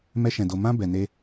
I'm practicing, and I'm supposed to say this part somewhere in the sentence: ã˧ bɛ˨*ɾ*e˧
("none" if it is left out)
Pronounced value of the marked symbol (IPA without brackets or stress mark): n